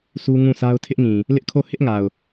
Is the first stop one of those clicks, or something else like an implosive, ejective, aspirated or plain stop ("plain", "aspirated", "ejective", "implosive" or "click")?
aspirated